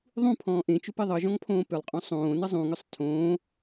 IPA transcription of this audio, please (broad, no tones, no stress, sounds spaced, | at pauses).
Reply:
ðˤ ũ pʰ ɔ̃ː ʔ ẽ t͡ʃ ʏ p e ðˤ ɤ ʒ ɔ̃ ŋ pʰ õː p ʏ lˠ qʼ õ sˤ õː n ə zˤ ũ ŋ ʏ sˤ tʰ õː